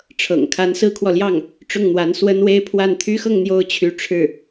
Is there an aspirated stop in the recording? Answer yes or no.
yes